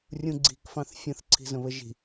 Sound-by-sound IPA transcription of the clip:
rʲ ũ ɡ͡ǀ i̤ k f ɑ̃ θ fʲ ə̃ θ ǀʰ i̤ z ə̃ β ə ʒ i̤

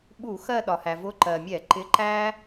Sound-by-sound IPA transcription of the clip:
ɓ u˧˩˧ x ɜ˦˨ ɗ ɒ˩ h æ˩ v ʊ˨˥ ǃ ɜ˩ mʲ ɛ˧˩˧ ǃ ɪ˨˥ ǃ æ˦

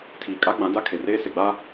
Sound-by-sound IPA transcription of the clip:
tʰ iː˨ kʼ a˦ ɡ͡b ã˨˦ d a˦ kʰ e˨ r eː˦ s e˨ ɡ͡b a˦

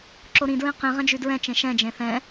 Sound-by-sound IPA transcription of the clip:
ǁ o ɾ ĩ d ɹ ĩ q ĩ ʁ ɛ̃ d͡ʒ y d ɹ ɛ̃ t͡ʃ ẽ ʃ ɛ̃ d͡ʒ ẽ θ ɛ̃

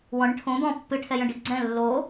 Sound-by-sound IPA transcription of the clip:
w ɔ̃ ɳ ə̃ ʈʰ õ d̪ ɔ̃ pː ɨ ʈʰ ɛ j ə̃ ɖ i ɡ͡ǀ ɛ̃ lː o

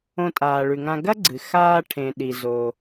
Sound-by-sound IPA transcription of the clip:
õ˧ tʼ aː˩ ɭ ʉ˩ ŋ ã˧ ɡ ɐ˥ ɡ͡ǀ ɨ˩ x aː˧ ʈʰ ẽ˩ ɗ i˩ z o˩

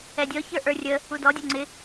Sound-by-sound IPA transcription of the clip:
ɛ dʲ ɔ ç ə˞ ʔ ə˞ rʲ ə | u d ɔ dʲ ɔ ŋ͡ǀ ɪ

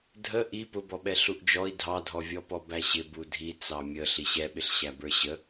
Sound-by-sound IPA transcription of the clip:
dʱ ə ʔ i p ʊ b ɔ ɓ ɛ ɬ u ʔ d͡ʒ ɔ i̯ dʱ ɑ dʱ ɔ vʲ ɔ p ɔ b æ ɕ ɪ b u dʱ i t͡s ɑ mʲ ə ɬ i ɕ ɛ ɓ ɪ ɬ ɕ æ b ə˞ ɕ ə

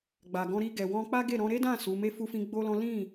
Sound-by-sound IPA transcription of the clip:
ɡ͡b a˨ ɡ ɔ̃˧ ɾ i˧ ɡ ɛ˨ w ɔ̃˧ k͡p a˦ ɡ e˦˨ ɾ ɔ̃˧ ɾ e˦ d ã˦˨ s u˨˦ m e˧ f u˧ f ĩ˧ ɡ͡b o˦ l ɔ̃˦ l ĩ˦˨

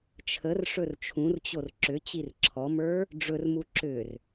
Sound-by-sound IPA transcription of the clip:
t͡ʃʰ ə r ʂ ɵ r t͡ʃʰ ũ r t͡ɕ o r ǁ ʏ t͡ɕ i r ǁʰ ɔ m ə˞ | ɖ͡ʐ ɵ r m u ǁ ʏ r

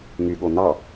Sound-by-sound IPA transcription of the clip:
ŋ y ɠ o n ɑ

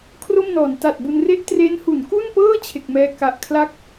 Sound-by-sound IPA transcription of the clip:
kʰ r o˥˩ m n ɔː˩˦ n t a˨˩ t̚ b u˧ n r e˥˩ ʔ t r e˦˥ n h u˩˦ n k u˥˩ n p ɤː˥˩ t͡ɕʰ e˨˩ k̚ m ɛː˧ k a˨˩ ʔ kʰ l a˥˩ k̚

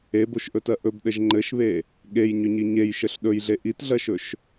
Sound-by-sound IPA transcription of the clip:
e b o ʃ ʔ ɵ t ɜ ʔ ɵ b ɗ ɘ ʒ ŋ͡ǃ ɘ ʃ β e | ɠ e j ɲ ʏ ɲ i ɲ e j ʃ ɘ ɬ ɗ ɵ j ɮ e ʔ i t ɮ ɜ ʃ ɵ ʃ

